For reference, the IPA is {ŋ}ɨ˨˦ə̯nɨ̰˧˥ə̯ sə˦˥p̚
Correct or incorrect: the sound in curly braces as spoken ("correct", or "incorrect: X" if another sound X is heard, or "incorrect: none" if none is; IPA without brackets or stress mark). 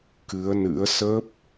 incorrect: k